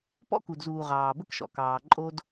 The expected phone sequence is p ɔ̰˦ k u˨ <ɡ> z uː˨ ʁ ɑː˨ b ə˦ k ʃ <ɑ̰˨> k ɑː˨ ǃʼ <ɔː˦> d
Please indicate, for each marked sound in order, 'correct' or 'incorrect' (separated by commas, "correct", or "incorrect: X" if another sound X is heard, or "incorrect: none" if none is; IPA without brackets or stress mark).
incorrect: d, incorrect: ɔ̰˨, incorrect: oː˦